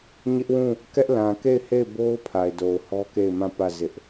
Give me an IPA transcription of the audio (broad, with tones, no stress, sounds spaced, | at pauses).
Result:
ɲ ɪ˦ ʔ w ũ˦˨ | k ɛ˦ ʔ l ã˨ k e˦˨ ɪ̯ h e˦˨ ɪ̯ b o˦ ʊ̯ pʰ a˨ ɪ̯ d o˨ ʊ̯ h ɔ˦ k e˦˨ ɪ̯ m ã˦˨ p ä˦˨ z ɪ˦ ʔ